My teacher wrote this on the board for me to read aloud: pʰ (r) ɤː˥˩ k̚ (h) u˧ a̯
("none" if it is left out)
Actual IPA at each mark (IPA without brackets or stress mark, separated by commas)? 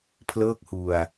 l, h